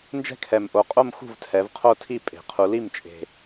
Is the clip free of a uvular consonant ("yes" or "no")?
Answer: no